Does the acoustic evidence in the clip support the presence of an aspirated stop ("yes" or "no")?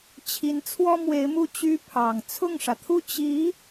yes